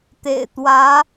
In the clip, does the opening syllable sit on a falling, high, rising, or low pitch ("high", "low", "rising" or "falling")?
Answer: low